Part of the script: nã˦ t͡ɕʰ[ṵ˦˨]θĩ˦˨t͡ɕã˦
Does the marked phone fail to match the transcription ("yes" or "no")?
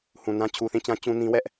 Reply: yes